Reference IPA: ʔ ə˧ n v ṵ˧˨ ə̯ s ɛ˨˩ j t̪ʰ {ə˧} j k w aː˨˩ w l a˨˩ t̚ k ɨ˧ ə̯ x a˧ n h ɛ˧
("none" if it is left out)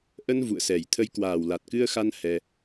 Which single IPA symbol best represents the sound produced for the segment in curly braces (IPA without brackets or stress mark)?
ə˧